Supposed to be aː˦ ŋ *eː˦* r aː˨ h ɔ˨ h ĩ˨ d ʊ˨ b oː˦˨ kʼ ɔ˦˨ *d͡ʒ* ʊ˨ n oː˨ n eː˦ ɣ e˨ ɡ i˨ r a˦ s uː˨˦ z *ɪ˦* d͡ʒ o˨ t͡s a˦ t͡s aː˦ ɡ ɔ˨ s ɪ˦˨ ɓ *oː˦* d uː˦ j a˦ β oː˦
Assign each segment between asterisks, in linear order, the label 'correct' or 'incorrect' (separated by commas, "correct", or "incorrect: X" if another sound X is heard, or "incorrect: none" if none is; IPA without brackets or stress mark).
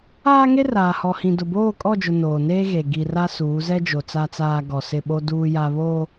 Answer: incorrect: e˦, correct, incorrect: ɛ˦, incorrect: o˦